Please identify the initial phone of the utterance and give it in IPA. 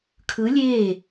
kʰ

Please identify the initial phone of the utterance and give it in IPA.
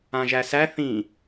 ã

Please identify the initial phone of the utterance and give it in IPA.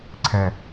ǀʰ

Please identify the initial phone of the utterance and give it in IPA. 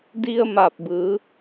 d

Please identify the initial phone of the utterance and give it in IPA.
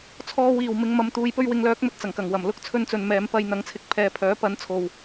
t͡sʰ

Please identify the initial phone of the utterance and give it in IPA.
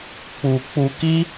k͡p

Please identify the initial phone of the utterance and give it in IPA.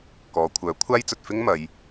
k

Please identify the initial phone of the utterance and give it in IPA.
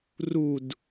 r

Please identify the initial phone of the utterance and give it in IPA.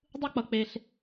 dˤ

